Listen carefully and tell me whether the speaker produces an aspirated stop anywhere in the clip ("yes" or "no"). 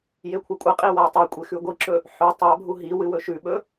yes